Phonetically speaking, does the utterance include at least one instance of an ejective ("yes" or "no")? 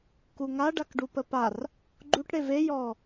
no